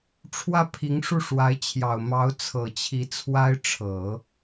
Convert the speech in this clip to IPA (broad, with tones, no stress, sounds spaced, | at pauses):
ʈ͡ʂʰ w ä˥˩ pʰ i˧˥ ŋ ʂ u˥˩ ʂ w a˧˥ ɪ̯ t͡ɕʰ j ɑ˨˩ ʊ̯ m ɑ˧˥ ʊ̯ t͡sʰ ɤ˨˩ t͡ɕʰ i˧˥ t͡sʰ w a˥ ɪ̯ ʈ͡ʂʰ ɤ˨˩˦